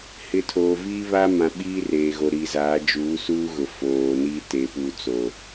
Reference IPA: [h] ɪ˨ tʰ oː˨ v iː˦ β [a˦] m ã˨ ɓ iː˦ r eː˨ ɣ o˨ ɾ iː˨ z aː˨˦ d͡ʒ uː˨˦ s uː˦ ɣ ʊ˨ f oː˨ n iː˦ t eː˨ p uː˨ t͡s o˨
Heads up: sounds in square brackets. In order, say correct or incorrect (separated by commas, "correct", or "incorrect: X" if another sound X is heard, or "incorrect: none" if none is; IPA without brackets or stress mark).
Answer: correct, correct